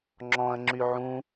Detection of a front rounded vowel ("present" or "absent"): present